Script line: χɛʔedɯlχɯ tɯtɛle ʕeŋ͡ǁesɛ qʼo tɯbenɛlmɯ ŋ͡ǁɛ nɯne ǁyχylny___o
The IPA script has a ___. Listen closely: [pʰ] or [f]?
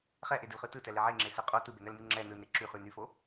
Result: f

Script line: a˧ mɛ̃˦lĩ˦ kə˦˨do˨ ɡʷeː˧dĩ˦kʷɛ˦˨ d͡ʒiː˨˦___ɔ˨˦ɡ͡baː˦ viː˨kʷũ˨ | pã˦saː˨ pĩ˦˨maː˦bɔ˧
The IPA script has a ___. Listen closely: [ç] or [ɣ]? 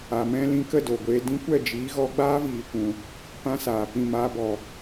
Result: ɣ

